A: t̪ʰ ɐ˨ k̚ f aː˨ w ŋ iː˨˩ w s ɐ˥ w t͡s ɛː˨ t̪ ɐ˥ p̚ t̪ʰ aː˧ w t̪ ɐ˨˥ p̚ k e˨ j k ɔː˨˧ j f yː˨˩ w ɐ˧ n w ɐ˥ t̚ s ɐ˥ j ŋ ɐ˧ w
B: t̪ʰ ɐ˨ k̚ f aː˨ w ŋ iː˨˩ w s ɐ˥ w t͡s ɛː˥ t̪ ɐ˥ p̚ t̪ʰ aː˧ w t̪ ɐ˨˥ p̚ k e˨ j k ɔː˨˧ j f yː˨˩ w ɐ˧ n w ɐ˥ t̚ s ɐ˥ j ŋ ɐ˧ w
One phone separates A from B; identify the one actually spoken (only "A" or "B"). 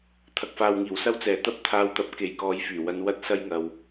A